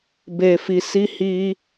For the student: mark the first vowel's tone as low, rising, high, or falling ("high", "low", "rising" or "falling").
low